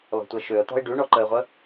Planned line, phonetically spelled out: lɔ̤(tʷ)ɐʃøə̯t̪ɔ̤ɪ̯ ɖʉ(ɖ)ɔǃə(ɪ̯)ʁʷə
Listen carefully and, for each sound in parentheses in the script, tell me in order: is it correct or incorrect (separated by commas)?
correct, incorrect, correct